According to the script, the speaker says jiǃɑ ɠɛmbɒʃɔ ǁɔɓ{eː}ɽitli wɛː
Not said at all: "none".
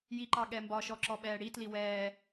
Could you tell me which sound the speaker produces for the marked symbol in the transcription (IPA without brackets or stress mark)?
ɛː